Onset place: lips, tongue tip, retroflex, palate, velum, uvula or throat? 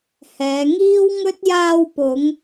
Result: throat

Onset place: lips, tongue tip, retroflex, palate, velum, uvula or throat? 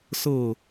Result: tongue tip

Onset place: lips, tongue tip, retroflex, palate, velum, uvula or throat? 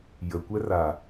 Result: palate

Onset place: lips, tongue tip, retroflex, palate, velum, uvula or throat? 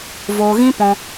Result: lips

